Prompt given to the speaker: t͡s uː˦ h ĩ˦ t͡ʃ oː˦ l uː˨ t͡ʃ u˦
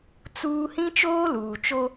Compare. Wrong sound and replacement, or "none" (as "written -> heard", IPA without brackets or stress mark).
u˦ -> o˦